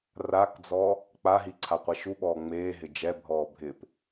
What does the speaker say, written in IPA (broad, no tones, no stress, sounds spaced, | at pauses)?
r a k d͡z ɔ | k͡p a ɦ i ǀʰ a qʷ ɛ ʃ u ɓ ɔː ŋ͡m eː ɦ ɪ d͡ʒ ɛ bʱ ɔː bʱ ɪ p